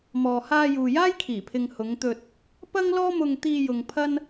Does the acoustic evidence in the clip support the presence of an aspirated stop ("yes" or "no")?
yes